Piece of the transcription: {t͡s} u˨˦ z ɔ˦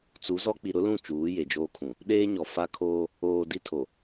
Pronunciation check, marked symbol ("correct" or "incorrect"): correct